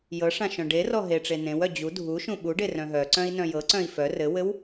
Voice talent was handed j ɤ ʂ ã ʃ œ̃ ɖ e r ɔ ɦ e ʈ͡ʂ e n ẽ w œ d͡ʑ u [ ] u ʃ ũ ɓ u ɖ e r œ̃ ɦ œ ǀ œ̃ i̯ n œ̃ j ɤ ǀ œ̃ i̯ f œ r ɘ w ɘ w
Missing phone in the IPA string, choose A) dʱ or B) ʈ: A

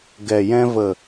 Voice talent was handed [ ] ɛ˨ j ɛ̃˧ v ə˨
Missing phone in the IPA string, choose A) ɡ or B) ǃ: A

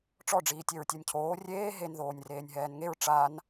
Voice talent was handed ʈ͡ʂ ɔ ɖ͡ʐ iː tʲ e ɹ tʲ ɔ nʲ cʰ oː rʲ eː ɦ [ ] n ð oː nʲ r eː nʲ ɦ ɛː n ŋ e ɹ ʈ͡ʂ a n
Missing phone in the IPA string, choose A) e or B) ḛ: A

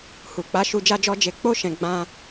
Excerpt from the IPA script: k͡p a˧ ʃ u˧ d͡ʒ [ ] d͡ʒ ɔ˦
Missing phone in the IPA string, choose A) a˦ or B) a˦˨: A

